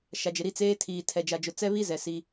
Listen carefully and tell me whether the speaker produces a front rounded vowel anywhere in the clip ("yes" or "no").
no